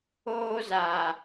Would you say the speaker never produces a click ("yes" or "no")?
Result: yes